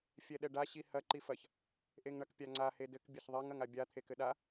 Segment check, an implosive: present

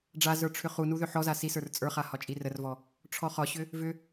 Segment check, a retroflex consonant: present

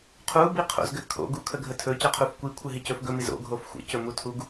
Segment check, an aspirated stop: present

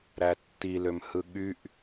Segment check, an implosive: present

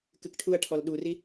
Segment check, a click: absent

